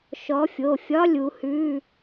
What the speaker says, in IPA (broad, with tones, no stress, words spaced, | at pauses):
ʃɔ˨˦fʲo˩˧˩fʲɒ˧˥˧lʲ u˨˦ hʉ˧˥˧